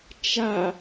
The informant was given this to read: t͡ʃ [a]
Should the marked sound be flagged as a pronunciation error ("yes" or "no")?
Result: no